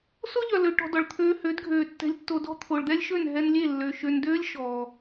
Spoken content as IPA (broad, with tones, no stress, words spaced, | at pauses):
so˦ʎœ˨lø˨ ʈɔ̤˧dɔ˨ɭ t̪ʰøː˧hø˨˦dɡʱøː˨ tːɛ̤˧lʲtːo˧dɔ̤˦ t̪ʰo˨ɭd̪ɛ˦lʲʃø˦˨n ɦɛ˧nlʲe˦˨ lːø˨ ʃø˨ndøː˦lʲ ʃɔː˨